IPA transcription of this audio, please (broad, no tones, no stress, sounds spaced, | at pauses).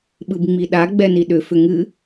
ɓ ɯ b ŋ͡m i ɗ a ɡ͡b ɛ n i ɗ ʏ f ʏ ŋ ɨ